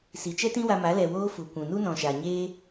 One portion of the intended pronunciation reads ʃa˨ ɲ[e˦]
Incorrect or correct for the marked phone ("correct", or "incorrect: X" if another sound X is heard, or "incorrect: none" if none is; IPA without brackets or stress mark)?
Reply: incorrect: eː˦